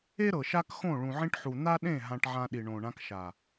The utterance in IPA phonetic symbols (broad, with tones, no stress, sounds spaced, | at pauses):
e˦ ɾ ɤ˨ ʃ a˦ k x õ˦˨ ɭ ũ˨ ʕ ĩ˧ ʈ ħ u˨ n̪ a˦ ɗ ẽ˦˨ ɦ ã˦ ʈ ʕ ã˦ ɗ i˨ ɳ õ˨ ɳ ã˧ k ʃ a˨